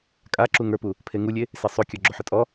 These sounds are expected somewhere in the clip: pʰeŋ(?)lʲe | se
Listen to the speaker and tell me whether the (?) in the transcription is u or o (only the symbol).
u